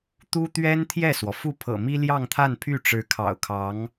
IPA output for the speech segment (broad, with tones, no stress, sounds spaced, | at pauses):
t̪ u˥ t̪ ɥ ɛ˥ n t̪ʰ j ɛ˥˩ s w ɔ˩ f u˥˩ pʰ ɤ̰˨˩ m i˥ l j ɑ˥˧ ŋ t̪ʰ a˥˧ n pʰ y˥˩ ʈ͡ʂ ɻ̩˧˥ kʰ ɑ̰˨˩ ʊ̯ kʰ ɑ˧˥ ŋ